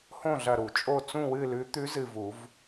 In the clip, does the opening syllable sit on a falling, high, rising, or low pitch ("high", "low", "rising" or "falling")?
falling